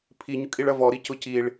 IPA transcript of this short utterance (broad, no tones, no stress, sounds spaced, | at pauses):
pʰ i ɲ ʊ kʼ i ɭ ɐ v ɔ ɾ i c ʊ c i ɭ